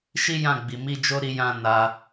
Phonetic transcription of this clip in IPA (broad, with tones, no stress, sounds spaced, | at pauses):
ʃ i˦ j ã˦˨ ɡ͡b i˨ m i˧ d͡ʒ o˧ ɾ i˧ j ã˧ n a˧